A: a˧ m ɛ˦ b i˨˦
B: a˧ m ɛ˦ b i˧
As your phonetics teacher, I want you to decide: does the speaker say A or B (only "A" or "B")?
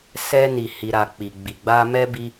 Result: B